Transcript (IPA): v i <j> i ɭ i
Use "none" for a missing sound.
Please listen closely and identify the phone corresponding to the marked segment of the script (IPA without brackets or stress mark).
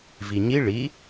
ɲ